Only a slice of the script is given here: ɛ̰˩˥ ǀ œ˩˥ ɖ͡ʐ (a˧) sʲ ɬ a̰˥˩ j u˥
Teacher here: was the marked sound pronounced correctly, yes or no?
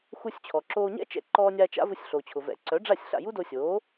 no